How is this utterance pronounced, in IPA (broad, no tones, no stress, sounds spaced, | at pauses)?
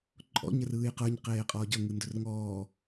ǃʼ ɔ̰ ɲ ə r ɯː j q ə˞ ɲ q eː qʼ ɔː ɟ ʌ ŋ ɯ n d ɵ r ŋ ɔː